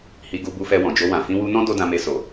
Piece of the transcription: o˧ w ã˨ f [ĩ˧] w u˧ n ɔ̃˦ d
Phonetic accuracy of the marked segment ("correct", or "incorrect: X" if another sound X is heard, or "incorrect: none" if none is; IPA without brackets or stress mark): correct